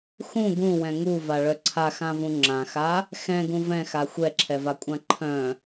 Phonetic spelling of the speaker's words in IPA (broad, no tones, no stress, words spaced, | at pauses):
xũ ɡũwɛ̃ ŋuvaɭœ ǀʰaxãvũ ŋ͡ǁãxa | xɛ̃ɡũ vɛ̃xa xʷɛǁʰɛvakʷʼã ǃʰœ̃